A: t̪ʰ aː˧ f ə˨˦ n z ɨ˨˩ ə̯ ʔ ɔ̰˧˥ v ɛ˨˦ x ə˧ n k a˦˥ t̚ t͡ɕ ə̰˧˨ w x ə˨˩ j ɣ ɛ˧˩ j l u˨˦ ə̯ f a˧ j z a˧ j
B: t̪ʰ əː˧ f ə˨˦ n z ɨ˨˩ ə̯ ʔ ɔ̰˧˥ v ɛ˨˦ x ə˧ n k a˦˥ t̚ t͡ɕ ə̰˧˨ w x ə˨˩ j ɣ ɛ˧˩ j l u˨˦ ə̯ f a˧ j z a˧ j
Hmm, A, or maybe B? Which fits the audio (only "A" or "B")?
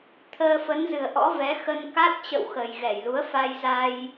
B